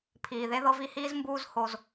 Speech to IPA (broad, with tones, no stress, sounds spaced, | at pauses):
pʰ iː˨ ð e˦ ð ɤ˦ v i˦ h iː˦ z m b uː˦ z h o˦ z